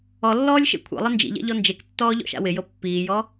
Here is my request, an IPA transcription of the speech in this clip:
ɔ lː ɔː lʲ ʃ ḛ kʷʰ ɛ̰ lˠ ɪ n d͡ʒ ḭ ʎ ɛ̰ ʎ ɔ n d͡ʒ e k tː ɔː ʎ ɔ̰ ʃ a̰ w ɪ j ɤ pː iː j ɔ

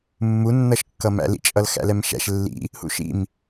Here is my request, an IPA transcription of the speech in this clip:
mː u nː ʌ ʃ kː ʌ m æ̰ l ḭ t͡ʃʼ ʌ l x æ̰ l ɛ m ʃ æ̰ ʃ lː ḭ | h ṵ ʃ ḭ m

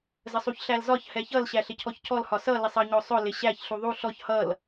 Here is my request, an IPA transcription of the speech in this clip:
z ə sˤ u ç ɬ æ l z ɒ ç h ɛ ç ʌ l ɕ æ ɬ ɪ cʰ ɔ ç cʰ ɔ l h ɒ s ʌ l ɪ sˤ ʌ ɲ ɔ sˤ ʊ l ɪ ɕ æ ç ɬ u ðˤ u ɬ ɔ ç h ʌ l

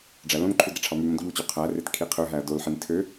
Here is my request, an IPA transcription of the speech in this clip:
ɖ͡ʐ æ l õ n ǃʰ u d ɾ i ʈ͡ʂʰ ɑ m y m õ d ʎ u t͡ɕ u qʰ æ r e t kʰ i qʰ ø ɦ æ ɐ̯ d o l ħ i n tʰ ø

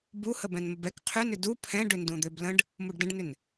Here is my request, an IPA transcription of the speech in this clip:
b u h ə b ɛ̃ n m ə b ɛ k qʰ ʏ n ʏ d u pʰ ɛ̃ ɖ ʏ n d ũ d̪ ø b l ə̃ ɖ | m u ɖ d ə̃ ɖ n ʏ n

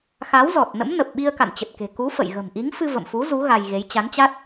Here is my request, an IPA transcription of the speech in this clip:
x a˨˦ w z ɔ˨˩ t̚ n ə̰˧˥ m n ə˨˩ p̚ ɓ i˧ ə̯ k a̰˧˨ n t͡ɕ ə˨˩ t̚ k e̤˨˩ k u˨˦ f ə̰˧˨ j ɣ ə̤˨˩ m ʔ i˨˦ ŋ f ɨ˧ v ə̰˧˨ m f u˨˦ z u˨˦ ɣ a˧ j ɣ e˨˦ j t͡ɕ a˨˦ n t͡ɕ a˦˥ t̚

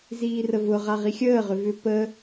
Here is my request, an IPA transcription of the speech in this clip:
z iː r ə v ʊ ʁ a ʁ i xʲ əː ʁ ʏ v ʏ p ə

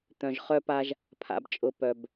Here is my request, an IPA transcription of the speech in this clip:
t̪ œ̃˨ ʒ χ œ˦ p a˦ ʒ | pʰ a̰˨ b t͡ʃʼ ʊ˨ p œ˨ b

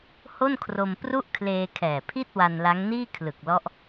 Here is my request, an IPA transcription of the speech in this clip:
h o˥˩ n kʰ r o˧ m p r u˥˩ ʔ kʰ l eː˧ kʰ ɛː˨˩ pʰ i˥˩ t̚ w a˧ n l a˦˥ ŋ n iː˥˩ kʰ l ɯ˨˩ k̚ l ɔ˦˥ ʔ

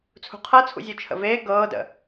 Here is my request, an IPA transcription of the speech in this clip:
t͡sʰ ṳ qʰ ɤ t͡sʰ ṵ zʲ u t͡ʃʰ ə̰ v eː ɡ ɤː d ə̰

